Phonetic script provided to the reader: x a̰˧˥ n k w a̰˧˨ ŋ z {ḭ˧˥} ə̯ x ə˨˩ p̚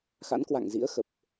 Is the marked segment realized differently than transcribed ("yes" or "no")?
no